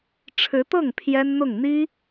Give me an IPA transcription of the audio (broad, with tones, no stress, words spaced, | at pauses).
ʈ͡ʂʰɻ̩˧˥t̪ɤ˥˩ŋ pʰjɛ˥nn̪ʊ˥˩ŋ n̪i˥